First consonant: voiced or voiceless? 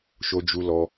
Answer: voiceless